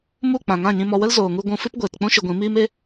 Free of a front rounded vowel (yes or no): yes